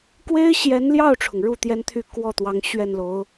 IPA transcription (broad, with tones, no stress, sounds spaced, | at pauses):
k w e˥ ɪ̯ ɕ j ɛ˧˥ n l j ɑ˥˩ ʊ̯ ʈ͡ʂʰ ʊ˩ ŋ ɻ u˥˩ t̪ j ɛ˥ n t̪ʰ y˥˧ k w ɔ˥˩ t̪ w ɑ˧˥ ŋ ɕ ɥ ɛ˥˩ n l o˧˥ ʊ̯